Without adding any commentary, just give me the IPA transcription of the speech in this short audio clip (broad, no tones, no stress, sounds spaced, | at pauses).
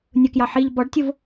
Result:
nʲ ʊ k j ɑ ħ i ʎ b ɔ ɖ tʲ ʊ v